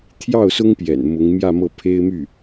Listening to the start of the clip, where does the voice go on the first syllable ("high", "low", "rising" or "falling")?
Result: falling